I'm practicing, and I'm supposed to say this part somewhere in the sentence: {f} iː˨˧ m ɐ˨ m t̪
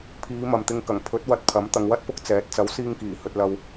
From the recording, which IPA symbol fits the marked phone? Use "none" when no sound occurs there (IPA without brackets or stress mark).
pʰ